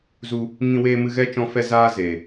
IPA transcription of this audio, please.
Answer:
z u˧ | ŋ ĩ˧ w eː˧ m ɨ˧ ɣ ɛ˦˨ t͡ʃ ɔ̃˧ f ɛ˧ z aː˧ z eː˨

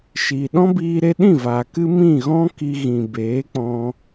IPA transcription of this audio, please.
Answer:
ʃ iː˨ ɗ ɔ̃˦ b iː˧ ɾ e˧ ɗ ĩ˦˨ v aː˨ k ɨ˦ m ĩ˦˨ ɣ ɔ̃˦ k i˧ ɣ ĩ˨ b eː˨˦ k͡p ɔ̃˧

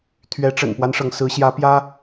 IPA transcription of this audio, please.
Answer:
t̪ʰ ɥ ɛ˨˦ ʈ͡ʂ ə̰˨˩ n p w a˦ n ʂ ɤ˩ ŋ s ɹ̩˨˦ ɕ j ä˨˦ p j ä˦

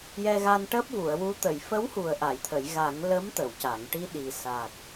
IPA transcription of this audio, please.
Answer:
j ɛ˧ ɣ a˧ n ʈ əː˦˥ p̚ v u˨˩˨ ə̯ w u˧˥ t̪ ə˨˩˨ j f ə˧˥ w h u˨˩ ə̯ ʔ a˨˩˨ j t̪ʰ ə˨˩˨ j ɣ a˨˩˦ ŋ l ə˧˥ m t̪ ə˨˩˨ w c a˨˩˨ ŋ ʈ i˧ ɗ i˨˩ s a˨˩ k̚

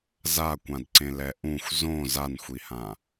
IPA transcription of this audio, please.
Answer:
z a kʷ ã d ǀ ẽ l ɛ ʔ ũ xʷ z õ z a n xʷ i h ã

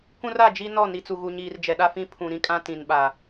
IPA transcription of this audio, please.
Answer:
k ũ˦ r a˦˨ d͡ʒ i˦ n ɔ˦˨ n i˨ t͡s u˨ ɣ u˨ ɲ iː˨ r d͡ʒ ɛ˨ ɗ a˦ f ĩ˦ pʰ ũ˨ ɾ ĩ˦ kʼ ã˦ t ĩ˨ n ɓ a˨

